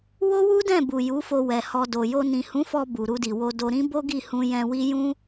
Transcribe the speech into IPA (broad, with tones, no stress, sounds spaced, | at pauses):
w o˦ w u˦ d ɛ̃˦˨ b u˨ j u˨˦ f o˧ w ɛ˨ h ɔ˧ d o˨ j o˧ n ĩ˨ h ũ˨˦ f ɔ˧ b u˨ ɾ u˧ d i˨ w o˧ d o˧ ɾ ĩ˦ b o˦ ɡ i˦˨ h ũ˧ j ɛ̃˧ w i˦ j ũ˦